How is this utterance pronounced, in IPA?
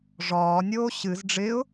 ʐ ɒː nʲ oː ɕ ɨ z ɖ͡ʐ ɪ ʊ̯

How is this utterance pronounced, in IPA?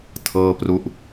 tʰ ɤː˥˩ p r u˥˩ ʔ

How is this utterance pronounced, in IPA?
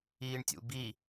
iː ɳ tʲ ṵ b i

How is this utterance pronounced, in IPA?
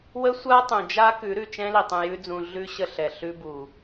w ə˦ sʷ a˦ tˤ ũ˨ d͡ʒ a˦ k ʉ˨˦ ɾ ʉ˨ t͡ʃ ɛ̃˦ l i˨ tˤ ũ˧ j ʉ˦ d͡z ũ˧ ɮ ʉ˦ ɕ ə˦ ɬ ɛ˨ ɬ ʉ˦ b u˨

